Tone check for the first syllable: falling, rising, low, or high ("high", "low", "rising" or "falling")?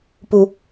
high